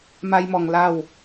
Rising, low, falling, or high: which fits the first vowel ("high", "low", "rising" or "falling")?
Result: high